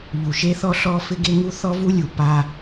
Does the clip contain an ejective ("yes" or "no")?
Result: no